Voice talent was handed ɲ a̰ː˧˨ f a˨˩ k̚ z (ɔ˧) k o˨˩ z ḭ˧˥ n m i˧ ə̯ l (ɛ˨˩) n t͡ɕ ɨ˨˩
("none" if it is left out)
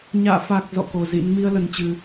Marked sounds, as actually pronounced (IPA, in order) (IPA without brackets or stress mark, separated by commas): ɔ̰˧˨, ə˨˩